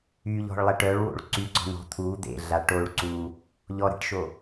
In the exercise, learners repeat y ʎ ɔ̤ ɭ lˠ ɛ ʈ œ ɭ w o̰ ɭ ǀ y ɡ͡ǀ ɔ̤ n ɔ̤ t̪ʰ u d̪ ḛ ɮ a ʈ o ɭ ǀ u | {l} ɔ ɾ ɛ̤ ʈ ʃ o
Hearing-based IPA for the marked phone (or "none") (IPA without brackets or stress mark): ʎ